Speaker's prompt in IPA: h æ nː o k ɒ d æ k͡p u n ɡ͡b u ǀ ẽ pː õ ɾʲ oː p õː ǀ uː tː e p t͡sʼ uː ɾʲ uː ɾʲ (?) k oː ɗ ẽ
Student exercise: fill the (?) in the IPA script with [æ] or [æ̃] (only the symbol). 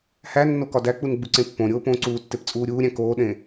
æ̃